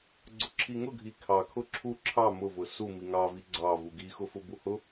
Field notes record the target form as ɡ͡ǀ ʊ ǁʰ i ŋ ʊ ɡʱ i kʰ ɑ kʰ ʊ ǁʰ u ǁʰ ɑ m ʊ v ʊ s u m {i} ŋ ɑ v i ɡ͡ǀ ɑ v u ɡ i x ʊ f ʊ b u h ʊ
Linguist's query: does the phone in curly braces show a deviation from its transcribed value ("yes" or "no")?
no